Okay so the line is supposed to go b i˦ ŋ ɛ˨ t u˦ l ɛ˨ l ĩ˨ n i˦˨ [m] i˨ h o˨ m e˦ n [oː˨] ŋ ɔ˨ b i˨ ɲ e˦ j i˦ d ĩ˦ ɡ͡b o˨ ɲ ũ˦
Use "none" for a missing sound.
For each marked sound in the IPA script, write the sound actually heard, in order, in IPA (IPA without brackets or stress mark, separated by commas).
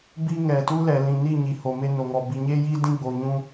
ɲ, o˨